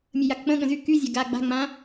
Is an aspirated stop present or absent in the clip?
absent